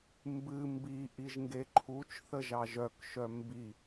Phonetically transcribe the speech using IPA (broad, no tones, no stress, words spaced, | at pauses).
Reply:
mbɨ mbi ʔiʒŋɡeǃʰut͡ʃ θəʒɑʒœkʃœ mbi